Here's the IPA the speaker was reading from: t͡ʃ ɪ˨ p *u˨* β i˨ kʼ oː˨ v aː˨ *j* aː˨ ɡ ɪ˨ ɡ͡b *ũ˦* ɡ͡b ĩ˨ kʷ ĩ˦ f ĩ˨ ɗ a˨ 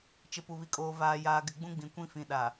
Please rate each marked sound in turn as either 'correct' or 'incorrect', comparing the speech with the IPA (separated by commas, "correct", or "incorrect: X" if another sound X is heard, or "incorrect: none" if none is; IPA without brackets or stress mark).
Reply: correct, correct, correct